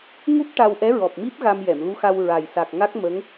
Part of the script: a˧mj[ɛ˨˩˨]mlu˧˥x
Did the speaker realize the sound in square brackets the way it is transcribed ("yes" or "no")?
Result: yes